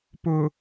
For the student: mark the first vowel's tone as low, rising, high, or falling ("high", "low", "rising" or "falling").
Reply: low